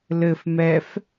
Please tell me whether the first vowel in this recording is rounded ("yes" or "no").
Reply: no